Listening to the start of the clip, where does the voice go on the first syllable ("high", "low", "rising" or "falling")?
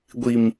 low